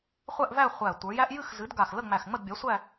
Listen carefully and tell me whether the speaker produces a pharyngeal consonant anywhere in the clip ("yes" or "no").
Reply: no